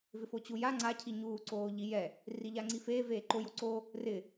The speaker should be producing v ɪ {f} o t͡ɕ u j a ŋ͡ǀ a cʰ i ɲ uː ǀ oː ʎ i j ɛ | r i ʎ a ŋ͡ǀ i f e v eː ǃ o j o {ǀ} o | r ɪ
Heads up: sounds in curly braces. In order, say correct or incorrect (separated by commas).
correct, correct